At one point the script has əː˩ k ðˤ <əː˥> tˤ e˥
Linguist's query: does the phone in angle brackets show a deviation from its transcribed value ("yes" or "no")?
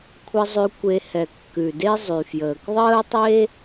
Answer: no